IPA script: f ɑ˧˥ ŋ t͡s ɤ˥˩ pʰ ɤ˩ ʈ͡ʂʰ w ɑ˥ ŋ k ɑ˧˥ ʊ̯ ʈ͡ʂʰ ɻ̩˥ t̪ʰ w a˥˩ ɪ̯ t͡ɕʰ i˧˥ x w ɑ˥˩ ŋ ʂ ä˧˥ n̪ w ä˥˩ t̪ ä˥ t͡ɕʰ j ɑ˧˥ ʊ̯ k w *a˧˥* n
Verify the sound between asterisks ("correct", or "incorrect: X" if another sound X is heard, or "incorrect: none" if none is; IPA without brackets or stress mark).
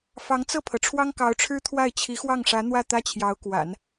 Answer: incorrect: a̰˨˩˦